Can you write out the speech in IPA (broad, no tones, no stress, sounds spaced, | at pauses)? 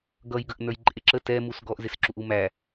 ɡ ʌ j ɡ ə ʔ n ə˞ j ǃʼ ɪ ǁ ə t ɛ m u s ɡ ɔ ʔ z ɪ s ǁ u ʔ u m æ